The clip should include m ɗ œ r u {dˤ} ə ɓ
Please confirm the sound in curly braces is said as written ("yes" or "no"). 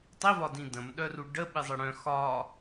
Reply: no